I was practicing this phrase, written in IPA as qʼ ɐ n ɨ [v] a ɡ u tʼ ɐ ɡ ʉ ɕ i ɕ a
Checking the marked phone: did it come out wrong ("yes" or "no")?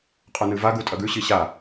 no